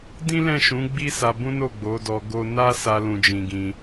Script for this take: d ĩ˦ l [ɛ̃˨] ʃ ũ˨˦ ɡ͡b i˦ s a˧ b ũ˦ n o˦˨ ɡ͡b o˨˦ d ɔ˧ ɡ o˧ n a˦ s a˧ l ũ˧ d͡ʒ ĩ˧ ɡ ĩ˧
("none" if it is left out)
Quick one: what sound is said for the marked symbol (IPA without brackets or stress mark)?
ɛ̃˦˨